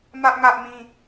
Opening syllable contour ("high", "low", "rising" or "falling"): high